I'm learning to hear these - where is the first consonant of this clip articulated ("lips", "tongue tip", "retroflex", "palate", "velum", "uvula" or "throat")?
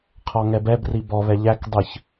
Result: uvula